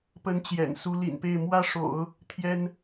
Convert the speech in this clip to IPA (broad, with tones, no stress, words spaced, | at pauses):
pə˧˥n t͡ɕjɛ̰˨˩nsu˧˥lḭ˨˩npe˥˩ɪ̯ mwä˥ʂo̰˨˩˦ʊ̯ | t̪ʰjɛ˥n